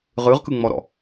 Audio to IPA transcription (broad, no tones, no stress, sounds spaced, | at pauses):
ʁ ɯ ʁ k ɯ ŋ͡m ɔ ɾ ɔ̰